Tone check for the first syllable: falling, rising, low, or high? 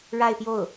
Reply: falling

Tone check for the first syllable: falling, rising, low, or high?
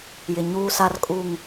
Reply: low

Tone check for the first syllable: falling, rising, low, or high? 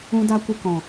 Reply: high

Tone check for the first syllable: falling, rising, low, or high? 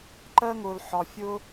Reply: high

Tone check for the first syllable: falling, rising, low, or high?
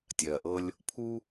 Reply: low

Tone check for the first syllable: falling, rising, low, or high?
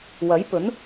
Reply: rising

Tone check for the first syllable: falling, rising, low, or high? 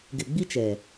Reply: low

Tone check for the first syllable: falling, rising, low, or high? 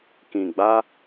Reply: low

